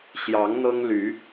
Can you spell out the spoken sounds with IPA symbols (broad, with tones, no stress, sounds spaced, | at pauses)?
ɕ j ɑ˨˦ ŋ n̪ ɤ˦ ŋ l y˨˦